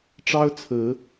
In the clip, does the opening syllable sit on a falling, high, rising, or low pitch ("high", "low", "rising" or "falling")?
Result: high